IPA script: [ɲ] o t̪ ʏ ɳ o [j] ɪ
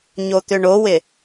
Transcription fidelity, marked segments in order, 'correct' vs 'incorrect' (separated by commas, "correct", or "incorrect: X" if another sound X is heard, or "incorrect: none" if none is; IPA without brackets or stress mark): correct, incorrect: w